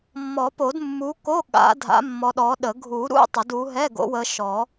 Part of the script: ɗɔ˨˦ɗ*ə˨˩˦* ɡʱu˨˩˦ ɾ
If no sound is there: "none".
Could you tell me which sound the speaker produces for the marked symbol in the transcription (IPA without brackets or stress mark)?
ə˨˩˦